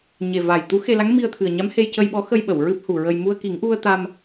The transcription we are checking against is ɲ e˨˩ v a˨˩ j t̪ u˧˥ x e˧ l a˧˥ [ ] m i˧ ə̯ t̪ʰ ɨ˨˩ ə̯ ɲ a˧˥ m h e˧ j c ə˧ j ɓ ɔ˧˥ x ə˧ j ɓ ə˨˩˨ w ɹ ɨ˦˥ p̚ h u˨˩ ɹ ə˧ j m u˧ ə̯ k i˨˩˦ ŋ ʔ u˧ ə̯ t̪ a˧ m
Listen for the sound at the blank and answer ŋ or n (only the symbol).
ŋ